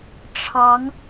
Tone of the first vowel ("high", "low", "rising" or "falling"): rising